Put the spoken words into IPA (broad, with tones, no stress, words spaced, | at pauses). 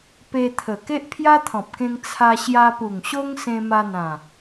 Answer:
pe˧t̪ʰə˨˩ ke˦ʔpʰja˦t̪ʰɔ̃˨p̚kẽ˧ŋ t͡sʰa˧ɕja˧pu˨˩ŋɕo˦ŋ sẽ˧ma˧n̪ã˨˩